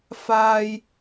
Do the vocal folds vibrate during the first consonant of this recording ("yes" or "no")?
no